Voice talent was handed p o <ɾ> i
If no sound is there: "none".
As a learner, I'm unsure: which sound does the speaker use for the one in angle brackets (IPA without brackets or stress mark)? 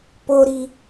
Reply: ɾ